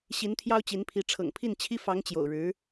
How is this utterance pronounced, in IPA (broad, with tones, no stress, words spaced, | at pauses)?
ɕi˧˥nt̪ʰjɑ˥ʊ̯t͡ɕi˧˥npʰi˧˥ ʈ͡ʂʰɤ̰˨˩ŋpʰi˥˩nt͡ɕʰi˥ fɑ˧˥ŋt͡ɕjo̰˨˩ʊ̯ɻɻ̩˧˥